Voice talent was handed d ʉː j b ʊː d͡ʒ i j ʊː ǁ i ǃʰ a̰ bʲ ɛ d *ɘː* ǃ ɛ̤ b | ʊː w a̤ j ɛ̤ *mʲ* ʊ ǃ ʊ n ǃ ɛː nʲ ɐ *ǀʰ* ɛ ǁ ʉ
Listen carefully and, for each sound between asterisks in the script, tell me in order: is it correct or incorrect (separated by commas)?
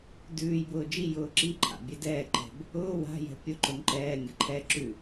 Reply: incorrect, incorrect, incorrect